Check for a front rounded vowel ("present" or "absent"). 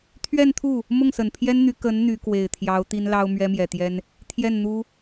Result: present